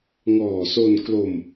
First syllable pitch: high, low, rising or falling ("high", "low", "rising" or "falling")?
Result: low